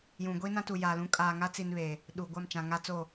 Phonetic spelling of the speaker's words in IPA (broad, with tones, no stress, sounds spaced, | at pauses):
j ũ˨ ɡʷ i˦ n ã˦ t u˨ j a˨ l ũ˦ kʼ aː˨ ŋ a˦ t͡s i˨ n β e˨ | ɗ u˨ ɡʷ a˦˨ m t͡ʃ ã˨ ŋ a˦ t͡s o˦˨